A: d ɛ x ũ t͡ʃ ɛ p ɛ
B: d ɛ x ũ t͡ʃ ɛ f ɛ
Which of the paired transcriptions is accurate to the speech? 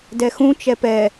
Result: A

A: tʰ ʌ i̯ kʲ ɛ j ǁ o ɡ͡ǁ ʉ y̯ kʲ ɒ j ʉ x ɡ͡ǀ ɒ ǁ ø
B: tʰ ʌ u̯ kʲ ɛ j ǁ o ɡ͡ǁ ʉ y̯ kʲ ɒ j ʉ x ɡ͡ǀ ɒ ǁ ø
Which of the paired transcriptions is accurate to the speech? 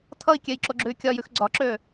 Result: A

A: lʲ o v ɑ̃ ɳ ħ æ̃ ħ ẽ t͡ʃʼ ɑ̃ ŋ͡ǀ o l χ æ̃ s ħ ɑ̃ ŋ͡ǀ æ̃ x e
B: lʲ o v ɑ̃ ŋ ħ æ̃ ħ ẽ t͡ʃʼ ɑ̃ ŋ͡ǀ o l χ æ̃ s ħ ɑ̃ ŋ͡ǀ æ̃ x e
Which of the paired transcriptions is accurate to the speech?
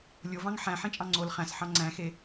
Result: B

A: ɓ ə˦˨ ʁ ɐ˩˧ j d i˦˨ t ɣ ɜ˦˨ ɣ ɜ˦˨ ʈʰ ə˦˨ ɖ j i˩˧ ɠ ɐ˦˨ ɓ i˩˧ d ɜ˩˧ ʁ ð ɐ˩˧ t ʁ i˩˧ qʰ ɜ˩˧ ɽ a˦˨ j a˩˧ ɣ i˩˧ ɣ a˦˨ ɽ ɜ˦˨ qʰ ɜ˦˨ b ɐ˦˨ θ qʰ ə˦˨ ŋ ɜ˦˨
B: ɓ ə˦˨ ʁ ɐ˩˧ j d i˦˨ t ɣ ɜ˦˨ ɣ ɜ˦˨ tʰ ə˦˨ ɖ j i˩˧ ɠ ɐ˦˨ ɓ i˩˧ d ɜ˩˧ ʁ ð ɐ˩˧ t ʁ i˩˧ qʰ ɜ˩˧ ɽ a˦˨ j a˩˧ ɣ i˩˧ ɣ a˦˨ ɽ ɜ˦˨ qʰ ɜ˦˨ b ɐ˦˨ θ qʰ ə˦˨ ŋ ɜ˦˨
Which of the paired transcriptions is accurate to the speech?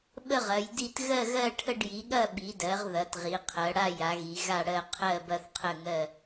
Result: A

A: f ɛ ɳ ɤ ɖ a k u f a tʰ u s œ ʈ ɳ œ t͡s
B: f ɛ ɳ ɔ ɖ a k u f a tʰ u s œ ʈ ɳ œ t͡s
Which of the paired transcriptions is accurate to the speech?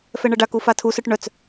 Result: A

